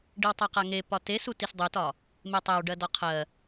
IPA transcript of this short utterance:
ɖiwtˤaqaŋe pɒte sutisdˤutɒ | metˤæw ɖɜdɒqʰɜ

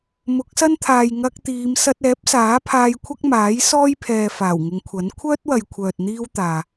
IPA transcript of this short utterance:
mʊ˨˥k̚sɐ˥nt̪ʰaː˨j ŋɐ˧k̚t̪iː˨˧m sɐ˧t̚ɛː˨˥p̚saː˨˥pʰaː˧j kʷʰɐ˥k̚maː˨˥jsɔː˥jpʰɛː˨ faː˨˩wŋɪ˨˧ŋkʷʰɐ˨˥n kʷʰœː˥t̚wɐ˨jkʷʰœː˨t̚ n̪iː˥wt̪aː˨

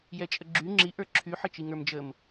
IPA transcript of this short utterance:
jɛt͡ʃʼəɡ͡ǁy ŋ͡ǁi ʔə˞ǁʰy ħɘt͡ʃiŋə˞md͡ʒəm

